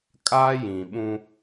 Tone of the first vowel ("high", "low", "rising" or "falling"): high